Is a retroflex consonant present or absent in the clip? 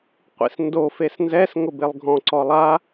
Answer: absent